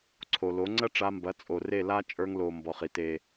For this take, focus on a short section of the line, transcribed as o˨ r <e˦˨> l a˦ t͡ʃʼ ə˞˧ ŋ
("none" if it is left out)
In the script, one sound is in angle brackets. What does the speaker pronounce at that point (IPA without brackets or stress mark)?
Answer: e˦˨